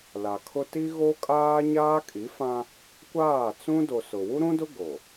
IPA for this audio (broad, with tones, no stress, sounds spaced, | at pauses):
l a˨ kʰ ʊ˦ t i˦ ɣ o˦ kʼ aː˦ ɲ aː˦ kʼ i˨˦ f ã˦ | kʷ aː˦˨ t͡s ũ˦ d o˨ s ʊ˨ w u˦ ɾ ũ˦ d ʊ˦ ɡ o˨